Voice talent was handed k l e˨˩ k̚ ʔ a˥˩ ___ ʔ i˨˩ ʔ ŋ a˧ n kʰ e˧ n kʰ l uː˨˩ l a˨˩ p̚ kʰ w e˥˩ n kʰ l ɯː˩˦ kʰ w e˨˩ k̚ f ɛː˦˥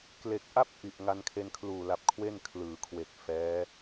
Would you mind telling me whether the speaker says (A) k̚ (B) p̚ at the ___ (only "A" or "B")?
B